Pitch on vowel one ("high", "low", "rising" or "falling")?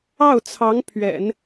falling